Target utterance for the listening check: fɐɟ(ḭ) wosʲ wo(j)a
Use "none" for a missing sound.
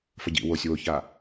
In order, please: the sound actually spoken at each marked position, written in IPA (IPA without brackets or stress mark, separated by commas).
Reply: ḭ, ç